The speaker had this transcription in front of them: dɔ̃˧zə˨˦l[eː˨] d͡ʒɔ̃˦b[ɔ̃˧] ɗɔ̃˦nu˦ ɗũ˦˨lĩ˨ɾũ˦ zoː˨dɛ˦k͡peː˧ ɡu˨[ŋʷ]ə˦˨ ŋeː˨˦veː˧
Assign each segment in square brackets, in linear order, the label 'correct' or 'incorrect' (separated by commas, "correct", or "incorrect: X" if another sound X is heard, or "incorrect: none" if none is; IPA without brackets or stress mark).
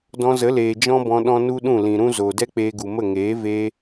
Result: correct, correct, incorrect: m